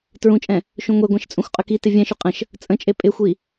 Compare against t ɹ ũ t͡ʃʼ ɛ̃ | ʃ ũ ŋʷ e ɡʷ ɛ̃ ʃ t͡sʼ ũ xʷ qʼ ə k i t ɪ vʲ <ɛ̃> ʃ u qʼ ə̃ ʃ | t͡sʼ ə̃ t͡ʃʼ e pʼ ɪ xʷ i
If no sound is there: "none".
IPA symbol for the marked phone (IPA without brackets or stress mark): ɛ̃